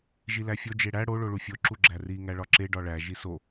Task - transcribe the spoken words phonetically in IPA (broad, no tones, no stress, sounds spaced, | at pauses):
ʒ i l æ fʲ o d͡ʒ e ɽ æ ɽ o ɭ o ɭ u fʲ o ǁ u ɡ͡ǁ æ r i ŋ æ ɭ ɒ ǁ e ɖ ɒ ɭ æ ʒ i s o